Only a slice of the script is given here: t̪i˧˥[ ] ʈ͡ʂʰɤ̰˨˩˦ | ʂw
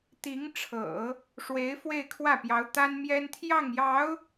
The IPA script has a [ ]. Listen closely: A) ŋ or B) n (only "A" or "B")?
A